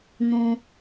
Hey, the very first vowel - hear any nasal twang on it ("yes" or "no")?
yes